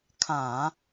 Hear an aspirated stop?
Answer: yes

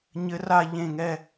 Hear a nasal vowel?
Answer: yes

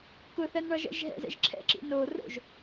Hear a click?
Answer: yes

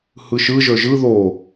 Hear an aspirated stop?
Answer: no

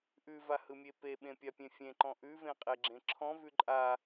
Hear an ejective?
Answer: yes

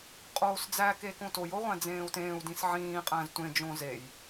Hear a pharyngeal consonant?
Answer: yes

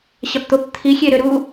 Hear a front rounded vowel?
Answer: yes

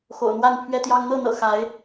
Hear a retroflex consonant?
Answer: no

